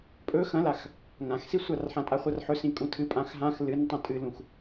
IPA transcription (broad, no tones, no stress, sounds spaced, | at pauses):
pʼ ɵ x ɐ̃ l a x | ŋ ã x s i sʷ a r ħ ã tʼ a χʷ ɐ r ħ ɵ s ĩ kʼ ũ tʰ ɨ pʼ ã x ɦ ã x l ɨ n tˤ ũ tʼ ɨ l ũ x